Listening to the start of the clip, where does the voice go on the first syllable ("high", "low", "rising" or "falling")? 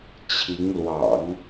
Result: rising